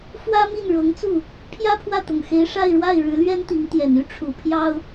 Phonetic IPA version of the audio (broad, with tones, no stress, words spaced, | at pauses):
fwä˥mi˥˩n ɻɤ˧˥ŋt͡su˥˩ | pʰjä˥pʰwä˥˩t̪ʊ˨˩ŋxe˧˥ɪ̯ ʂa˥˧ɪ̯ɻwa˥˩ɪ̯ ɻɻ̩˧˥lɥɛ˥nt̪i˧˥ŋ t̪jɛ˨˩ny˥ ʈ͡ʂʰu˨˩ pʰjɑ˥ʊ̯